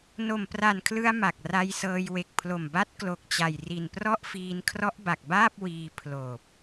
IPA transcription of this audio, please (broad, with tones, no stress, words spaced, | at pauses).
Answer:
no˨˩mpra˨˩nkʰlɯ˧a̯ ma˨˩k̚ra˧jsɤː˧j we˨˩k̚pʰlo˨˩mba˦˥t̚ klo˨˩k̚t͡ɕa˨˩jri˨˩nprɔ˥˩ʔ fiː˧nkʰrɔ˦˥ʔba˨˩k̚baː˥˩p̚ wiː˧ pʰloː˨˩p̚